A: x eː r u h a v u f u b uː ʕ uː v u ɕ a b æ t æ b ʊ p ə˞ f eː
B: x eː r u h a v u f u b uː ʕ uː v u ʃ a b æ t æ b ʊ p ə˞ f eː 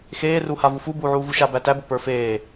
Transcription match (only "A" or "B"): B